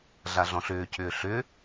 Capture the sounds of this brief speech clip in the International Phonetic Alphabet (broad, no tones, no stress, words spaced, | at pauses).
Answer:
ɮaɮɔ̃ɬʏːcʰʏː ɬʏ